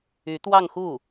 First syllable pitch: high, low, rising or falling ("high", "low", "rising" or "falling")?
rising